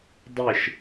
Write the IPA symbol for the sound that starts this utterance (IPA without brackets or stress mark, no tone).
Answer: dˤ